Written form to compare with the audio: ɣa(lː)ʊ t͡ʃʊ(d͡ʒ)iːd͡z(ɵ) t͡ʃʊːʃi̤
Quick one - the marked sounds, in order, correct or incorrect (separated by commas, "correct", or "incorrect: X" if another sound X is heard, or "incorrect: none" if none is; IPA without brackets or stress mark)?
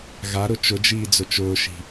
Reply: incorrect: ɾ, correct, incorrect: ʊ